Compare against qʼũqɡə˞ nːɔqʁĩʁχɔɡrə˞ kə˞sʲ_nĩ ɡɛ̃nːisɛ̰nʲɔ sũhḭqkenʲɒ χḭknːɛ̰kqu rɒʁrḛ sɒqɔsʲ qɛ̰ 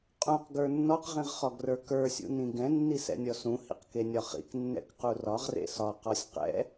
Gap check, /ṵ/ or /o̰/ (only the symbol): ṵ